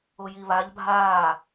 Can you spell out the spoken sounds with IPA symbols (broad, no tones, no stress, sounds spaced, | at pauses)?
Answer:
ʊ j i β a ʎ bʱ aː